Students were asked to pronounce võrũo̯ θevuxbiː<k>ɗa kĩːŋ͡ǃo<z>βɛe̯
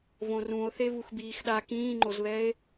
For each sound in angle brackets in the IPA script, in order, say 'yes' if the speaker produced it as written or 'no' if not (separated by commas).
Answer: no, yes